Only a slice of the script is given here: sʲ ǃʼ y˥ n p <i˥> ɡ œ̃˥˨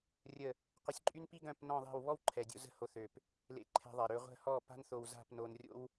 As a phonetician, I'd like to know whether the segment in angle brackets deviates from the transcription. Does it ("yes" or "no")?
no